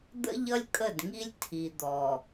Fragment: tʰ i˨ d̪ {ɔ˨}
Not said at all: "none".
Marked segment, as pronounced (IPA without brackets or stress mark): ɔ˨